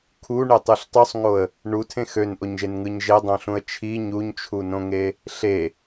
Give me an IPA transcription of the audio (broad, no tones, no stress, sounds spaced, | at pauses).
kʰ u ɳ e tˤ ɯ ɬ tˤ u sˤ ŋ o ə̯ | ɳ u tʰ ẽ x ø n ʔ o ɲ ʒ e n ŋ ɯ ɲ ʒ e dˤ õ ɬ ũ ə̯ t͡ʃʰ i ɲ u ɲ t͡ʃʰ u n õ ŋ e | ɬ e